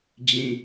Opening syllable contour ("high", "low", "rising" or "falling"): low